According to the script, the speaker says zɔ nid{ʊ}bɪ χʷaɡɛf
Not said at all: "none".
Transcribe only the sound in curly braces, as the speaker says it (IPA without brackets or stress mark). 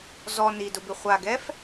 ʊ